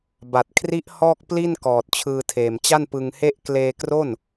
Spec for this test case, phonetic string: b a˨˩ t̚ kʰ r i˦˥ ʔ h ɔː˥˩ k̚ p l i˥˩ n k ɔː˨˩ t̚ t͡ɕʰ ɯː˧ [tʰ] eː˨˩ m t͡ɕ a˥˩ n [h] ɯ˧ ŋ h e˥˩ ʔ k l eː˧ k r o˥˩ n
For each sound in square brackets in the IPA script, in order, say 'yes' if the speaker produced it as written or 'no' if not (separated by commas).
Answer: yes, no